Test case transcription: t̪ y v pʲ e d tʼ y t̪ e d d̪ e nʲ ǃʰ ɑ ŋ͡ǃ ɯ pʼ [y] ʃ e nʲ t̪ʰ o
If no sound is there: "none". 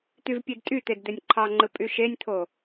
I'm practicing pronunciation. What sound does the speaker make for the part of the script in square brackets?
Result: y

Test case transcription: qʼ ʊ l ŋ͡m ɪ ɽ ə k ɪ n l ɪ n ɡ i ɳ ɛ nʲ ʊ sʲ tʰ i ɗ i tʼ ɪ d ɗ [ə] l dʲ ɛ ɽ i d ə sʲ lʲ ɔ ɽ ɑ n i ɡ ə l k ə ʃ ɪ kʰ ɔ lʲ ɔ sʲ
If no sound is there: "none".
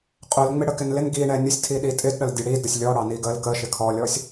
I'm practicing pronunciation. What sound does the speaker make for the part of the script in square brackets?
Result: ə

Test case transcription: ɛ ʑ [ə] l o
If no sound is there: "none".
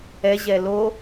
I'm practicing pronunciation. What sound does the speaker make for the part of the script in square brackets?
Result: ɛ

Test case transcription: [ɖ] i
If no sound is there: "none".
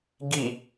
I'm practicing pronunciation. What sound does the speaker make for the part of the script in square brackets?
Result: ɡ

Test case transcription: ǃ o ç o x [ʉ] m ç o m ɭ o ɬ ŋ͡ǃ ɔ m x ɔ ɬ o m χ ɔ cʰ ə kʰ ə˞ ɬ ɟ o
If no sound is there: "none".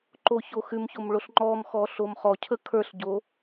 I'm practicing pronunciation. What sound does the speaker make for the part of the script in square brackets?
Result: ʉ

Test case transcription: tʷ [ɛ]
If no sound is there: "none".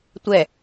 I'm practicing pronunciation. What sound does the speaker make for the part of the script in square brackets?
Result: ɛ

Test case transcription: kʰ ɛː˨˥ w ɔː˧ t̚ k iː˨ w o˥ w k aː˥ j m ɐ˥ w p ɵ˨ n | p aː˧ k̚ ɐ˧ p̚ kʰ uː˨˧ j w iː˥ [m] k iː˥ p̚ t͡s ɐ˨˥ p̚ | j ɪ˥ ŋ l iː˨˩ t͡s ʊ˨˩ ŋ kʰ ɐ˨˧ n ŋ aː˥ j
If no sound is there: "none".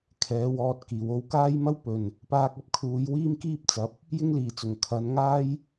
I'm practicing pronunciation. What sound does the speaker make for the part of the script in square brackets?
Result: m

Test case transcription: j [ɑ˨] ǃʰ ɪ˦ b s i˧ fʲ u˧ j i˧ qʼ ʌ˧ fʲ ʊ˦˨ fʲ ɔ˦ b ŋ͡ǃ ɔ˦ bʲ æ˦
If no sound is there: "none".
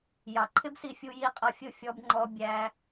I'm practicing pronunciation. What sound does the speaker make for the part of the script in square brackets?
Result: ɑ˨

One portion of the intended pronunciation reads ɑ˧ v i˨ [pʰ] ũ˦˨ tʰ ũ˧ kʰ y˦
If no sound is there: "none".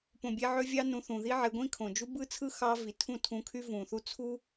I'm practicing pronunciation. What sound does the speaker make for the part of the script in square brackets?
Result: tʰ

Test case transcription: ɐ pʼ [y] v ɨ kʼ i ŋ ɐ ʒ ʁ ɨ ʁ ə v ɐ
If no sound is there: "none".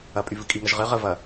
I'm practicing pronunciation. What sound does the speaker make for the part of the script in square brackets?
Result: y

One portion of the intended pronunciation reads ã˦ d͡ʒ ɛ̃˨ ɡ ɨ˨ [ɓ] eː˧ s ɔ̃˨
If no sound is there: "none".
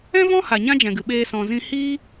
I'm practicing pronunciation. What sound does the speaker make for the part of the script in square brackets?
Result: ɓ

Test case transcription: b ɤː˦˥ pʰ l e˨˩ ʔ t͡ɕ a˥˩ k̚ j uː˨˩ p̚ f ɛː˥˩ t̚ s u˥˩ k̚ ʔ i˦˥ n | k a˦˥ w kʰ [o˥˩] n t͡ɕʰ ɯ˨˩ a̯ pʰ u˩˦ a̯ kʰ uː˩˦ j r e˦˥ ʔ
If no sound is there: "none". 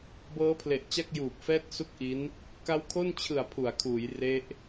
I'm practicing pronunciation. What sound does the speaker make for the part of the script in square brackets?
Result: o˥˩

